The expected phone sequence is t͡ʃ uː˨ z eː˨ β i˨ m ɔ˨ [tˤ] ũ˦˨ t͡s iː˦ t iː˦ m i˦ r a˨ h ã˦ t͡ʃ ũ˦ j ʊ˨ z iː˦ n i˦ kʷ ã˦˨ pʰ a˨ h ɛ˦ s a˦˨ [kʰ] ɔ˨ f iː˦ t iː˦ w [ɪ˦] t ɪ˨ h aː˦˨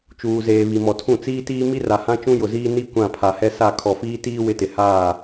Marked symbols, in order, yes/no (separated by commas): no, yes, yes